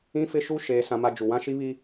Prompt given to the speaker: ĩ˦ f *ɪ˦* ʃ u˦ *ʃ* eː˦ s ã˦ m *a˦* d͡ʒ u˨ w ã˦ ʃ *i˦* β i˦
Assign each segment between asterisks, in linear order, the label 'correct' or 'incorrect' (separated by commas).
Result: correct, correct, correct, correct